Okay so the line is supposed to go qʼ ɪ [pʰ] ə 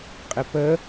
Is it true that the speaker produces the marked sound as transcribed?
no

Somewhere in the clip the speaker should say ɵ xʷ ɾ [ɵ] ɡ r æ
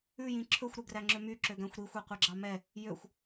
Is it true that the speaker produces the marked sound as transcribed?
yes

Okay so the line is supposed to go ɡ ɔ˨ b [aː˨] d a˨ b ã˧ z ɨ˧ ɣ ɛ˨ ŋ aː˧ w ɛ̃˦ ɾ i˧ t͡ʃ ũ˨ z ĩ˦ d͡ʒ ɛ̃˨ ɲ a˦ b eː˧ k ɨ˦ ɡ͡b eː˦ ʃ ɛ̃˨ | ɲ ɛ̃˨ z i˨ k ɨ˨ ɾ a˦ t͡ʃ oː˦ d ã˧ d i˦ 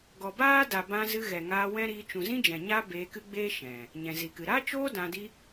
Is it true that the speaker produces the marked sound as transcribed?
no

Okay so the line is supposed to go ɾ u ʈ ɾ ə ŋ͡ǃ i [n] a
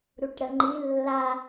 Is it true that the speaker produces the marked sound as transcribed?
no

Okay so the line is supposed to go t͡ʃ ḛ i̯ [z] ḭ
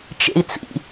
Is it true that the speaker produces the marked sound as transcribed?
no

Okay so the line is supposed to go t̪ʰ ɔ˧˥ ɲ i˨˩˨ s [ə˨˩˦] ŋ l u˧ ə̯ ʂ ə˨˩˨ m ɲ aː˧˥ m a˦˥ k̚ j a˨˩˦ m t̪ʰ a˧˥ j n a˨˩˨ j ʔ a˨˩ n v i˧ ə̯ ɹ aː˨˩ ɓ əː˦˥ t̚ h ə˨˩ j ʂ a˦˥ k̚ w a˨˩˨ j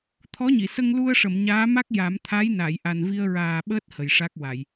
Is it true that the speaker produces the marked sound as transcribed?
no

